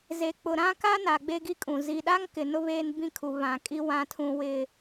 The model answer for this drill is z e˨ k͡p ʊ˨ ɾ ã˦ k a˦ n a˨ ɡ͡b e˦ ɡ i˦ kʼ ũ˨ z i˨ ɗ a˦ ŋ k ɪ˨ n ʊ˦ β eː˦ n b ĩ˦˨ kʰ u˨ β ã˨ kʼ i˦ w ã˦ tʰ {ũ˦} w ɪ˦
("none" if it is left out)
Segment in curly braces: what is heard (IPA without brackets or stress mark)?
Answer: ũ˦